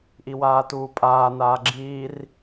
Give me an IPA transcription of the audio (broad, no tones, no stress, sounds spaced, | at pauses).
ʔ i w aː t uː pʼ aː n aː ɡ͡ǁ iː r